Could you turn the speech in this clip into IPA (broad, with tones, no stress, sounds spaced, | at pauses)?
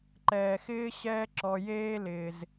ǃ ɛː˨ x ɪː˥ ɕ ɛː˦ ǁ ɔ˨ j eː˦ l ɪː˩ z